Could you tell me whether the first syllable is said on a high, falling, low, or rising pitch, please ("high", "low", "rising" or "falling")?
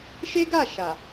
high